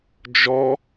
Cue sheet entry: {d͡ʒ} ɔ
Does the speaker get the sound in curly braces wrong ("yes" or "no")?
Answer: no